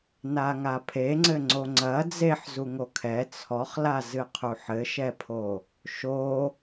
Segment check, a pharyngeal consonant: present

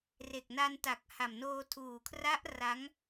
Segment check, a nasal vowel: absent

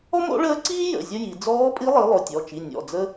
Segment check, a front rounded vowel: absent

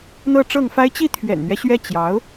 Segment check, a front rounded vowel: absent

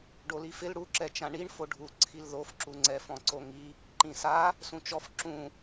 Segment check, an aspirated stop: present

